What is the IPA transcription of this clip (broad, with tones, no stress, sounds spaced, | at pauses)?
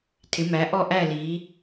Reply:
tʰ ɪ˨˦ m æ˨˦ ʔ ɔ˥˧ ʔ æ˥˧ l i˨˦